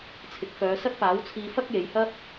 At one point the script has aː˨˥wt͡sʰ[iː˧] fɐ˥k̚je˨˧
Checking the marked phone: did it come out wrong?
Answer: no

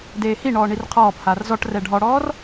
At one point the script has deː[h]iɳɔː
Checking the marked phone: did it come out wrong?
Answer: no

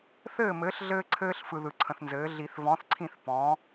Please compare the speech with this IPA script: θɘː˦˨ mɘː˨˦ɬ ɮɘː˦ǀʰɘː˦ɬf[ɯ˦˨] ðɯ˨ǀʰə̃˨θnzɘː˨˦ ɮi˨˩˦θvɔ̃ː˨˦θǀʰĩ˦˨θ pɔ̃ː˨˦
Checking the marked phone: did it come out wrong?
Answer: yes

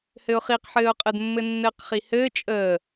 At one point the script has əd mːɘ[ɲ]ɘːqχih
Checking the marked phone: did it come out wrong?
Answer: yes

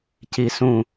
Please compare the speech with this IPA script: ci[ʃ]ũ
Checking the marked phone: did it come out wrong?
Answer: yes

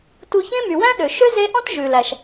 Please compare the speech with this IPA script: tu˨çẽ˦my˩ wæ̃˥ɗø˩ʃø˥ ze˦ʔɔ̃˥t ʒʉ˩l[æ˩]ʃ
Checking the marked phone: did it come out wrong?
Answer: no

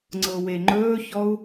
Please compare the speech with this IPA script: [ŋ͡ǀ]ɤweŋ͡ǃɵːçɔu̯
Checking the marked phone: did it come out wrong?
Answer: no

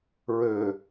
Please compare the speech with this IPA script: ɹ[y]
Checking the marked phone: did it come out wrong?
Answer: yes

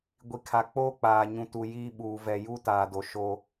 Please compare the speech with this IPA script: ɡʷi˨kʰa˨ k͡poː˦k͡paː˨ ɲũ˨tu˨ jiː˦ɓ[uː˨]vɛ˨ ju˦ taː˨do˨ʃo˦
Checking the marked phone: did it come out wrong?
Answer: no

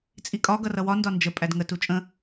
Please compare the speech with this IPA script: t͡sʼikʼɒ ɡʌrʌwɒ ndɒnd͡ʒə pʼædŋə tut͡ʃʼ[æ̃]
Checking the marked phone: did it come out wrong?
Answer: yes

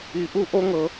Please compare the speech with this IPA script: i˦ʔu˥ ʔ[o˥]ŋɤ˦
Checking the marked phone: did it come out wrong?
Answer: no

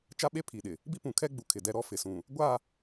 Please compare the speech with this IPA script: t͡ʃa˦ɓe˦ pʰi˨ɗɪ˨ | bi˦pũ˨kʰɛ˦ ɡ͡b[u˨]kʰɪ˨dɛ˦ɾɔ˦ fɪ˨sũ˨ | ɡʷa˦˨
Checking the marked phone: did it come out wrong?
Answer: no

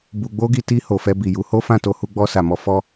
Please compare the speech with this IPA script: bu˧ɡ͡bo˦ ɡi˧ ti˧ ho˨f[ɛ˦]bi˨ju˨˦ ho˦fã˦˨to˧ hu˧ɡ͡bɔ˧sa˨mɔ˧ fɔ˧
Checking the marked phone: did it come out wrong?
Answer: yes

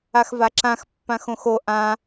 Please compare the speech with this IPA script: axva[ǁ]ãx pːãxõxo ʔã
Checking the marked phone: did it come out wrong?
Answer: no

